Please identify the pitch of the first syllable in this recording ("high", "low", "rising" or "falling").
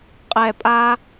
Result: low